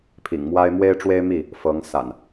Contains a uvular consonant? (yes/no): no